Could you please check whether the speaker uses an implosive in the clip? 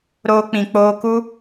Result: no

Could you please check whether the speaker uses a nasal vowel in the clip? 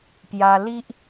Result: no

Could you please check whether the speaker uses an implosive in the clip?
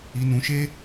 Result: no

